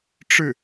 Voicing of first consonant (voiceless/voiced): voiceless